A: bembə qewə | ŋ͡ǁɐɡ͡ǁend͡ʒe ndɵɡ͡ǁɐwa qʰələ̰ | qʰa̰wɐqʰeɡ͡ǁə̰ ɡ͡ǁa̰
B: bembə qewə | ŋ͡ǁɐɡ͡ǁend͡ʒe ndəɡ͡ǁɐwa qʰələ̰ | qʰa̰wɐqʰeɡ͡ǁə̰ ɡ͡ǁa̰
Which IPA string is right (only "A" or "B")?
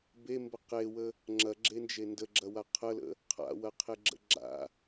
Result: B